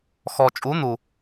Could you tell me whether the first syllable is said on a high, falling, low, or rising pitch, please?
low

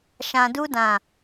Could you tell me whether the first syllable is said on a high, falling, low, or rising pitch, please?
low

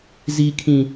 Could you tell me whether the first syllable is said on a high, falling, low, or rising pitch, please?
high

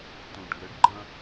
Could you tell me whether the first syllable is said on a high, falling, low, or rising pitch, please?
low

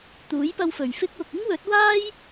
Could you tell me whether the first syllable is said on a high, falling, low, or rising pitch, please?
rising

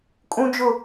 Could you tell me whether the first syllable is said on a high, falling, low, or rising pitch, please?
high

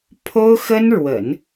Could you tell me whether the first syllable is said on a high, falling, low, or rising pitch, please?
high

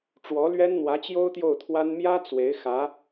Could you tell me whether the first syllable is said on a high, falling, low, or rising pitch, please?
rising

